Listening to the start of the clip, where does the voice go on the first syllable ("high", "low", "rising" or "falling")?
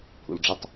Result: low